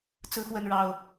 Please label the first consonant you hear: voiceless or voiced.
voiceless